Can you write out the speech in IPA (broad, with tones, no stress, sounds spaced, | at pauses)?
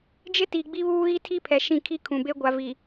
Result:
d͡ʒ ɪ˦ t i˨ ɡ͡b i˦ β uː˦ ɣ i˦ tʰ i˦ pʰ ɛ˨ ʃ ĩ˦˨ kʰ i˦ kʰ ũ˨ b e˦ ɡʷ a˨ v iː˨